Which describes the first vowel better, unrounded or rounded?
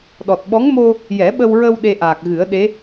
rounded